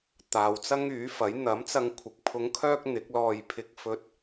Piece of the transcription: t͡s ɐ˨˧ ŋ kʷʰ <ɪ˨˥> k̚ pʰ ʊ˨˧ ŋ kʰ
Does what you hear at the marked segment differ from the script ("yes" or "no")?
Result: yes